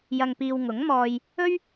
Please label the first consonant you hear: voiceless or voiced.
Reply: voiced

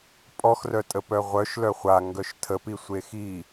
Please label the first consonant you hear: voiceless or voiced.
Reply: voiceless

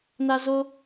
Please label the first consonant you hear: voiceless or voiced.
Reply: voiced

